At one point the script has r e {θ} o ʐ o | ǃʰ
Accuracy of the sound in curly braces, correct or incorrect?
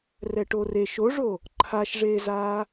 incorrect